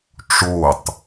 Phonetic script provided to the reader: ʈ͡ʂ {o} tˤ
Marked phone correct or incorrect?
correct